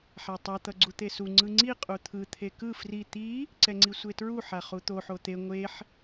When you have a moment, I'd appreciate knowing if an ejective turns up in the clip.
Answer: yes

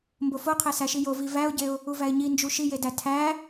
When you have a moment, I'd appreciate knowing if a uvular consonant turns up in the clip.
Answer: yes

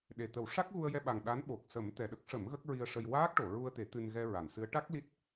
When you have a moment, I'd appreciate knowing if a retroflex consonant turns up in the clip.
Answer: yes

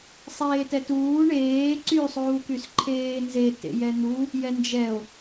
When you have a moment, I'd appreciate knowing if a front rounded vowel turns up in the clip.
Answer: yes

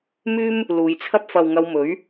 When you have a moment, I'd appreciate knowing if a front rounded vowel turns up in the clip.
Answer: yes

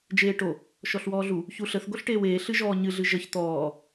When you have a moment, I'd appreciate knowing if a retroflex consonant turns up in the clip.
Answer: yes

